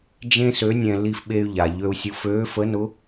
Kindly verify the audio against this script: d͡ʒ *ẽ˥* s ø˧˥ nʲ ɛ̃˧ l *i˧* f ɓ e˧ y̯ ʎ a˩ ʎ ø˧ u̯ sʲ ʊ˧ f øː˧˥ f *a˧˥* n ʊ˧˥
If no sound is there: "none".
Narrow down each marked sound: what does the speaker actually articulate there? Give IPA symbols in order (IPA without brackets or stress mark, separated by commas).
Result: ẽ˥, i˧, ə˧˥